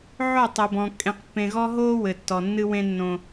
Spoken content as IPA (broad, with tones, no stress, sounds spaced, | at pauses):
ʕ o˦˨ tˤ e˨ b ɔ̃˨ kʼ ẽ˨ q pː ẽ˨ ɣ ɔ˦ ɦ o˦ w ɘ˨ tː ɔ˨ nː ɨ˦ w ẽ˦ nː õ˦